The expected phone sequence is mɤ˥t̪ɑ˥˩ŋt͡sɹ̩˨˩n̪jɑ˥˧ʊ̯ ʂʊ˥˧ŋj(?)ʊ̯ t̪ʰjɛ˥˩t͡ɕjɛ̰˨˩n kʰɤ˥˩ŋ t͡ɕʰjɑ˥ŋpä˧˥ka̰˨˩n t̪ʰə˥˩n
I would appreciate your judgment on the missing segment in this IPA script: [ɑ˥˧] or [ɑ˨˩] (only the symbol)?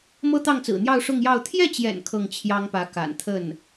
ɑ˥˧